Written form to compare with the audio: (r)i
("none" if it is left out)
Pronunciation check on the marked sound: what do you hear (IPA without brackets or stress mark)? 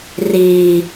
r